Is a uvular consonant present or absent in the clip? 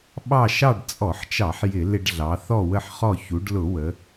present